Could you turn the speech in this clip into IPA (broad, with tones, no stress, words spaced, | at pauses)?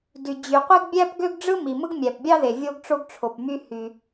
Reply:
dy˩d͡ʑy˩qʷi˥ɡ bʲæ˥pɡø˥ɡ ɖ͡ʐɯ˥ mi˩mɯ˥ɡ mʲæ˩pbʲɑ˥ðe˩ vʲo˥ɡʈ͡ʂo˥ɡʈ͡ʂʰo˩pmy˥ hy˩